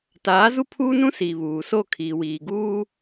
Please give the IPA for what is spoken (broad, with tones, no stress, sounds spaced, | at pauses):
t aː˨˦ z u˦ pʰ uː˦ n ũ˦ s iː˨ β uː˨ s o˦˨ kʰ iː˨ w iː˨ ɡ uː˦